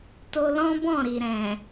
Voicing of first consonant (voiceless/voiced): voiceless